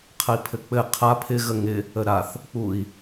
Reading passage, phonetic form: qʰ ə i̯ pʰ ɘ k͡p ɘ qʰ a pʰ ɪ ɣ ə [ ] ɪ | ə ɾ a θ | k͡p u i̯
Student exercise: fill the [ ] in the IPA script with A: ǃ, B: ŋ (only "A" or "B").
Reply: B